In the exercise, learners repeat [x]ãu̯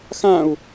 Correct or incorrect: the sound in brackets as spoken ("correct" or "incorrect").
correct